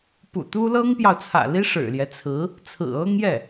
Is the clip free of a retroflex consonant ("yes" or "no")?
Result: no